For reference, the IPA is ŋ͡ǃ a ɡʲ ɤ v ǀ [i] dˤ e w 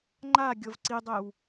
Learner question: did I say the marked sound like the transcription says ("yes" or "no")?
yes